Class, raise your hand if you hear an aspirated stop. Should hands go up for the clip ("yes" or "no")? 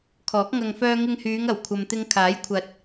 yes